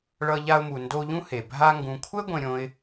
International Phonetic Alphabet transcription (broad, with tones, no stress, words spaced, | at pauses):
ɭʌ˦ʎa˦ʊ̯mu˨ ndo˦ʎũ˥ he˩ bʱa˦ ŋɡũ˨kʷʰɛ˥ ɡʷẽ˦ɾʲõ˦ɪ̯